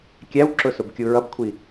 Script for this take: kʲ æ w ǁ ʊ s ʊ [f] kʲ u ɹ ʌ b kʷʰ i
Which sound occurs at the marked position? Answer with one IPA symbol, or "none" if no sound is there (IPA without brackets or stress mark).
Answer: b